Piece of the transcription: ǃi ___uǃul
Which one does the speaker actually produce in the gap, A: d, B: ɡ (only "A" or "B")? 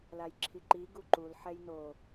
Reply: B